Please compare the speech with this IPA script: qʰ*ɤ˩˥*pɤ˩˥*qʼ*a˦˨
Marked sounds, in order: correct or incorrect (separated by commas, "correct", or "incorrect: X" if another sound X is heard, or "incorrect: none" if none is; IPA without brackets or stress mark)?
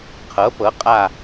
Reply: correct, correct